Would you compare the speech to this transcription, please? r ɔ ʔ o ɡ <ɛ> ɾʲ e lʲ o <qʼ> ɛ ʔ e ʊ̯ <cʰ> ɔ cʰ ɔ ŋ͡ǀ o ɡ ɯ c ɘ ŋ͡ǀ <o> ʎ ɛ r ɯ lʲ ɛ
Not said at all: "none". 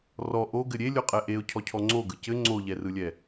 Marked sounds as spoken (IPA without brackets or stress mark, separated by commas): ɘ, qʼ, cʰ, o